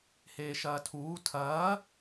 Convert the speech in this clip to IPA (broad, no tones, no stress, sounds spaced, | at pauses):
h eː ʃ ɐː tʰ uː tʰ ɐː